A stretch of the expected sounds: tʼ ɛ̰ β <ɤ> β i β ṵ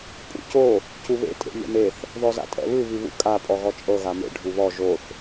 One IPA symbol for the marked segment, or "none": ɯ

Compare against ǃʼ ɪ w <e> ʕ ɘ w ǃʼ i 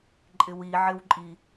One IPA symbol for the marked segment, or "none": i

